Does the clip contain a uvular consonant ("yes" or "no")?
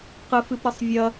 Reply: yes